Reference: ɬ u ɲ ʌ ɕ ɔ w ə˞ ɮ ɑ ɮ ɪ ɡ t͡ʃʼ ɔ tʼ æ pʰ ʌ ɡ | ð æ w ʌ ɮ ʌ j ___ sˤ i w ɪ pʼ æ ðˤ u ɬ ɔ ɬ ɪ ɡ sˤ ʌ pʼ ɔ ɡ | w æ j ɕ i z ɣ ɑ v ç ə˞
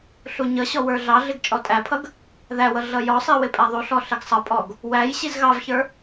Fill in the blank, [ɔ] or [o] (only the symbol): ɔ